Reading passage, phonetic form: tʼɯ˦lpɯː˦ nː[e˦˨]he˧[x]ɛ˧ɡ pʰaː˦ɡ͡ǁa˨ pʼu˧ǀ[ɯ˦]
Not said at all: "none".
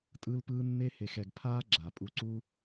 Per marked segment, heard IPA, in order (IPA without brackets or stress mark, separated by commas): e˦, x, u˦